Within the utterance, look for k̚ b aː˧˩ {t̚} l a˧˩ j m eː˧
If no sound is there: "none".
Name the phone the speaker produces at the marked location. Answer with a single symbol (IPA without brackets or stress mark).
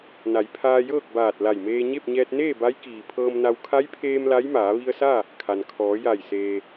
t̚